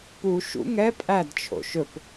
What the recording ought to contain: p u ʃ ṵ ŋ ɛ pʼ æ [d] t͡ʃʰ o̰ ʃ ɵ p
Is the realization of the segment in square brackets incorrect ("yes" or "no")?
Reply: no